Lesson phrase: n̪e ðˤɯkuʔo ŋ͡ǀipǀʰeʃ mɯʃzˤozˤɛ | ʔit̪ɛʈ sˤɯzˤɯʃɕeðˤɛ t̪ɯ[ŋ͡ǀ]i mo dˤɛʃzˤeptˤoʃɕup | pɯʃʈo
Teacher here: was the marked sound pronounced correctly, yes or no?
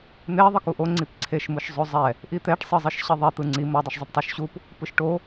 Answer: yes